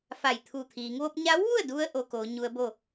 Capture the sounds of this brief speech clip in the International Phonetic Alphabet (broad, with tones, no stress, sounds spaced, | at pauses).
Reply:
f a˧˩ j t̪ʰ u˧˩ t̪ʰ iː˩˧ ŋ ʋ o˧˥ p̚ ɲ a˧˥ w ʋ u˥˨ ə̯ d u˧ ə̯ ʔ o˧ k oː˩˧ ɲ u˧˥ ə̯ b o˥˨